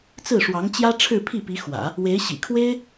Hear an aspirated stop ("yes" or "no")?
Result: yes